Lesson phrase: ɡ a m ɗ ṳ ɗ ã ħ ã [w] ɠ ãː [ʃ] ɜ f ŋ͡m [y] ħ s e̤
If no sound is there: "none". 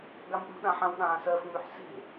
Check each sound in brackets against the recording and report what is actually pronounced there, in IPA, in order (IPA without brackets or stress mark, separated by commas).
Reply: w, s, y